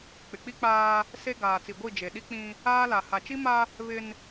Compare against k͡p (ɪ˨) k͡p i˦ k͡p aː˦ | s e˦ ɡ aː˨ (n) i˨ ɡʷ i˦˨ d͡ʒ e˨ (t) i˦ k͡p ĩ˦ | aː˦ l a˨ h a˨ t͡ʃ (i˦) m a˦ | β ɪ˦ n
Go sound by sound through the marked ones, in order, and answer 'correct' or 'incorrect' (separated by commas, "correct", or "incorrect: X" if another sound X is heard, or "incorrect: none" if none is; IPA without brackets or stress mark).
correct, incorrect: t͡s, incorrect: ɗ, correct